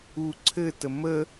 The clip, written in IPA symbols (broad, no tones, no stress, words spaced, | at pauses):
u ǀʰɘtə mə